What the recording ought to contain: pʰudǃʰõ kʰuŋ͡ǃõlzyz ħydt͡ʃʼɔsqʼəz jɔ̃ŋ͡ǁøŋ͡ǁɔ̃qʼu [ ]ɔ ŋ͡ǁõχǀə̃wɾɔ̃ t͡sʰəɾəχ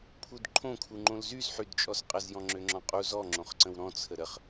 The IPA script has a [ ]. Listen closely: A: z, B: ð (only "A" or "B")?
A